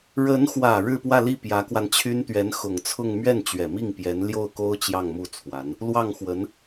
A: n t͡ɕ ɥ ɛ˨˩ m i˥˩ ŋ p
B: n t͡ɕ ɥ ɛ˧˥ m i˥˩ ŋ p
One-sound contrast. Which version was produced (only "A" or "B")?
A